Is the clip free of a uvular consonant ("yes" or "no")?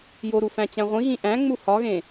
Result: no